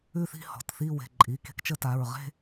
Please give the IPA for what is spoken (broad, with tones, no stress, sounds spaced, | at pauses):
ʉ˥˧ θ i̤˥˧ h ɔ̤˩˧˩ t θ i˥˧ w e̤˩˧˩ ǃʼ i˩˧˩ k e̤˥˧ k t͡ʃ ə˥˧ t a˩˧˩ ɹ ʁ e̤˥˧